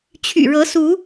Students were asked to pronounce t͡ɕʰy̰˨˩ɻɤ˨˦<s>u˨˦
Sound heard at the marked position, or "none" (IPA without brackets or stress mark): s